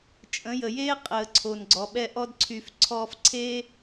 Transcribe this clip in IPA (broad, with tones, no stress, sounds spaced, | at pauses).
t͡ʃʼ ə̃˨˦ j ə˨ j eː˦ qʼ əː˨ ǀʰ o˨ n ɡ͡ǀ ɔ˨ ɓ ɛ˧ ʔ ɔ˧ d ǀʰ y˨ f ǀʰ ɔː˧ f ǀʰ eː˦